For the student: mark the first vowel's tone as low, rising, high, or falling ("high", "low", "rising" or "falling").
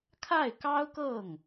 falling